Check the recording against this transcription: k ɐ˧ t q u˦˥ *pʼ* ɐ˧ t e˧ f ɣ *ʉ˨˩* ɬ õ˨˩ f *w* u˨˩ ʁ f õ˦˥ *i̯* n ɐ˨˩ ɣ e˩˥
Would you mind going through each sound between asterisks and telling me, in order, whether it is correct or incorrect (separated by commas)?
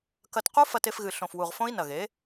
incorrect, incorrect, correct, correct